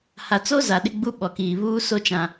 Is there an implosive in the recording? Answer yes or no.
yes